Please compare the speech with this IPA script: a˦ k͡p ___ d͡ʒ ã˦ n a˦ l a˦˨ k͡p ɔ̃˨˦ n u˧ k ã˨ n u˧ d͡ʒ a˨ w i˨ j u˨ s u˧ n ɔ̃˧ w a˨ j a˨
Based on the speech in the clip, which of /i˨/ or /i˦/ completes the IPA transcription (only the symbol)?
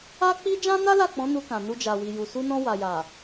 i˦